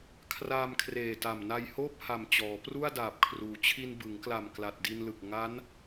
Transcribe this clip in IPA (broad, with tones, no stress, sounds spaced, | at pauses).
kʰ r aː˧ m kʰ r eː˨˩ t a˨˩ m n a˧ j h oː˥˩ p̚ h a˨˩ m t͡ɕ ɔː˩˦ p r u˥˩ a̯ d aː˨˩ p̚ kʰ r uː˩˦ t͡ɕʰ i˧ n b ɯ˩˦ ŋ k l a˨˩ m k l a˨˩ t̚ d i˧ n l ɯ˨˩ k̚ ŋ a˦˥ n